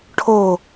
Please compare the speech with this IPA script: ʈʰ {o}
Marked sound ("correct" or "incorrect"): correct